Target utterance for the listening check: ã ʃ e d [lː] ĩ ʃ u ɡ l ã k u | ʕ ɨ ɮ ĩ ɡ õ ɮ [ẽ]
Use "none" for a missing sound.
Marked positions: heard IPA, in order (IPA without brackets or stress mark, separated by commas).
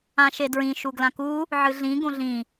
ɹ, ĩ